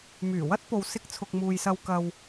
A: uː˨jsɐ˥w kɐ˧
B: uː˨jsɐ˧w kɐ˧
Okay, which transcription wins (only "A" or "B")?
B